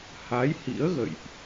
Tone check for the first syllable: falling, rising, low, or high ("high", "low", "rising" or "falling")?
rising